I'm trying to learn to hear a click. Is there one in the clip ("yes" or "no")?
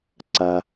yes